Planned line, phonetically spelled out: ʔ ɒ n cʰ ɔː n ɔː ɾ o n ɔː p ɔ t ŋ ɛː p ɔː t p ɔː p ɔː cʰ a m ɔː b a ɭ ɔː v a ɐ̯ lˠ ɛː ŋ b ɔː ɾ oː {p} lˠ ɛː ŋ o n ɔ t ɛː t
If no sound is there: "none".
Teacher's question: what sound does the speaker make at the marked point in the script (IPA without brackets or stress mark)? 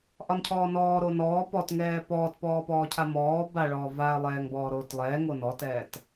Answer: t